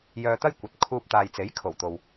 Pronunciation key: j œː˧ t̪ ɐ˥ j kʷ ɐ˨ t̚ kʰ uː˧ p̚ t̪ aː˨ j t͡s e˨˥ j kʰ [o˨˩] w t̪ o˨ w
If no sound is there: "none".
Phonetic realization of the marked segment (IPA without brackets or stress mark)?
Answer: o˨˩